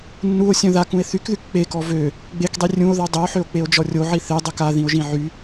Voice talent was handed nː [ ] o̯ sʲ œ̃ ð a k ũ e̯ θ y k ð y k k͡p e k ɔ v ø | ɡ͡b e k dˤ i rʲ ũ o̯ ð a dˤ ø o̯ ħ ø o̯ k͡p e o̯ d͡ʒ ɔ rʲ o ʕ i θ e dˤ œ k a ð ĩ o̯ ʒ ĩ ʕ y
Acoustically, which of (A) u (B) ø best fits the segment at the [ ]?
A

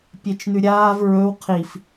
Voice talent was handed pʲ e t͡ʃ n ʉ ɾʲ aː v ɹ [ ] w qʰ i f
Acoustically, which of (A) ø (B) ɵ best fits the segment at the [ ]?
B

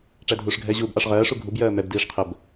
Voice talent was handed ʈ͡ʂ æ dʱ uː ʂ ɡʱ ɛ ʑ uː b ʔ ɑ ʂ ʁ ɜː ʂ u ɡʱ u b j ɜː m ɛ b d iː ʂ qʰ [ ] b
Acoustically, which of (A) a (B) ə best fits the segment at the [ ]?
B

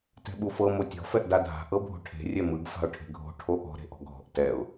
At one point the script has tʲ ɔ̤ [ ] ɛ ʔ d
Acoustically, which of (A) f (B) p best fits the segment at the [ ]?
A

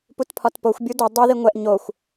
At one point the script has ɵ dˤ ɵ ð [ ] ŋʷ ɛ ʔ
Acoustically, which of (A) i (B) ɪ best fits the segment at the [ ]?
A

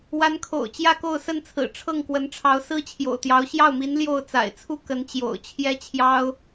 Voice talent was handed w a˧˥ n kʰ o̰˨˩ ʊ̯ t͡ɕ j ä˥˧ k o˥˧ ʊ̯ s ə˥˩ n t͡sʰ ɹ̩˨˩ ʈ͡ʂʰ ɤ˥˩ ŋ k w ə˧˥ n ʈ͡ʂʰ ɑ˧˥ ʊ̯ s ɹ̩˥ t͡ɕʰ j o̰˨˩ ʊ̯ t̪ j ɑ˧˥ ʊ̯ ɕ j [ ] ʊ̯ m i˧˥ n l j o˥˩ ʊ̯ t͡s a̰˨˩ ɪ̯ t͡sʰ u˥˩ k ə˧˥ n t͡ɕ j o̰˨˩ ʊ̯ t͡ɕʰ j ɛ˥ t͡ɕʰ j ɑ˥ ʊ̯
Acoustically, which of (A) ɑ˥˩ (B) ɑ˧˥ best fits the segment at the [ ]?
A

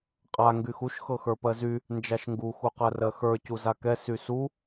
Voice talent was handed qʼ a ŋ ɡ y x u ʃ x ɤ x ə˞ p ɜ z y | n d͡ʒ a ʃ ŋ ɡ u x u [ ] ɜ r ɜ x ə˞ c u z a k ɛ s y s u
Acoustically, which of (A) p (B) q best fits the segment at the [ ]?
B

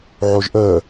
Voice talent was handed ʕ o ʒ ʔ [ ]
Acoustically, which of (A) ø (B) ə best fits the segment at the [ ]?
B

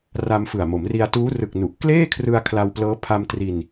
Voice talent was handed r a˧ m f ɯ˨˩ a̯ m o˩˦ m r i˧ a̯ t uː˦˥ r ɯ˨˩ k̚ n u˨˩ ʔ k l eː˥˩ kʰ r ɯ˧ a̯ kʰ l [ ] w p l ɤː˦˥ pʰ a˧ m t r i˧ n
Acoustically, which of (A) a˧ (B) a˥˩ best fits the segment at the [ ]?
A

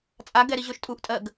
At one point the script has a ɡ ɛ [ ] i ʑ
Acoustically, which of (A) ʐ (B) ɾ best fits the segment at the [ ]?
B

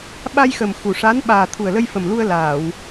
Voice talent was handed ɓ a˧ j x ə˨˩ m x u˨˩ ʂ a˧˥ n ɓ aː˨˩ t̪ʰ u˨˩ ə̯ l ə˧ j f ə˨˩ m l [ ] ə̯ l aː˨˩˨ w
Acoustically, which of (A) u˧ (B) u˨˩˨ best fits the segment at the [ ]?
A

